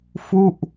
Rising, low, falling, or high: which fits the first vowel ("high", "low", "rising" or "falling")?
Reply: falling